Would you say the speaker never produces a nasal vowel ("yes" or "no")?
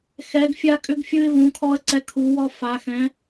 no